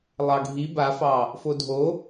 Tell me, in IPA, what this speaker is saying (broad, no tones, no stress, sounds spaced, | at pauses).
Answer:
lˠ ɑ ɡʱ i b a f ɑ | f o dʱ o